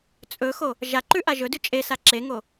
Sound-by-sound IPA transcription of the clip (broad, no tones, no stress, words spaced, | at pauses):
t͡sʼɵxo | ʒaǃʉ ʔaʒɵdʉ t͡ʃʼesa ǁeŋo